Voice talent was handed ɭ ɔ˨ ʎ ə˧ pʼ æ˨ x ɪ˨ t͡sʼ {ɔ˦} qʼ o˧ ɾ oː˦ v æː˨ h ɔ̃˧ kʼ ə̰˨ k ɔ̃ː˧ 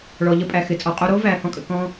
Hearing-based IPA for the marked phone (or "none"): ɔ˨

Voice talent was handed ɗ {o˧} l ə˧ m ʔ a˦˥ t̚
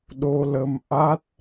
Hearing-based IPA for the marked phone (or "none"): o˧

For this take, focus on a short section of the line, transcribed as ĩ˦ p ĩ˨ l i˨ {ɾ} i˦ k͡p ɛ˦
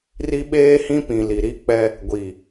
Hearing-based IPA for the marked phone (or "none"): ɾ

